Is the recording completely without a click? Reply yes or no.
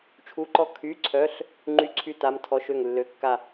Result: no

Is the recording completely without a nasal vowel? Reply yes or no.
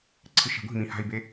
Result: no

